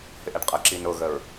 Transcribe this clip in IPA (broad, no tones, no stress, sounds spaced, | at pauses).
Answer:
h ɪ ʔ ɛ ɖ qʼ ə ǁ i n ʊ ɣ ə ɹ